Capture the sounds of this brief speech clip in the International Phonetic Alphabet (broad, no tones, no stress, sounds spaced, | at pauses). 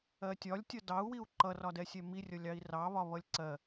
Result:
ɜ tʲ ɒ lʲ tʲ ʌ d ɑ u̯ w i u̯ ǃ ʌ r ɒ d ɛ sʲ ɛ m i rʲ ʌ lʲ ɑ i̯ r ɑ β ɒ β ʌ lʲ ǀ ɜ